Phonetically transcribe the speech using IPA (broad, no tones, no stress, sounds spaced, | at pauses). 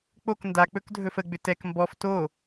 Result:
k͡p o k n d a k͡p ɵ k dʱ ɵ f ə ɡ͡b ʏ t ɛ k m b ɔ f t o